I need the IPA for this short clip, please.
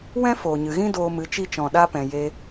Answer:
w ɛ̃˦ f oː˨ ɲ ɨ˨ ɣ ĩ˦ d oː˧ m ɨ˨˦ t͡ʃ i˧ t͡ʃ ɔ̃˨ ɗ a˧ p ɛ̃˨ j e˧

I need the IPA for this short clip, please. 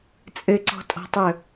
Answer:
t͡sʼ ɘ ǀ ɔ̤ tʼ ɔ̤ tˤ ɵ

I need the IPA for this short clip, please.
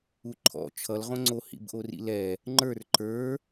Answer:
u ǃʰ ɔ̰ t͡ʃʰ ʌ l ʁ õ ŋ͡ǀ o h ḭ b ʔ o r ḭ l ɛ | ŋ͡ǃ ə˞ r ǃ ə˞

